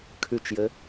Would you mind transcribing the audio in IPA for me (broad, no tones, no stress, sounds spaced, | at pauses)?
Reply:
kʰ ʉ t͡ʃ j ɘ